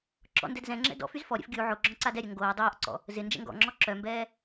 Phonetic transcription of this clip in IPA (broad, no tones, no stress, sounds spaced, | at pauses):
ǁ ɔ̰ n d ɛ d z ɛ̃ ŋ͡ǁ ɛ̰ d ɔ̰ f y z f ɔ ɾʲ ɛ̰ f ɡʲ u ʕ o ɡ͡ǁ ɔ̃ ǀ a d ɛ ɾʲ œ ŋ ɡ oː dˤ oː ʔ ǀ ɔ̰ | z ɪ n d͡ʒ ɛ̰ ŋ ɡ ɔ̰ ŋ͡ǁ ɔ ǁ œ m b ɛː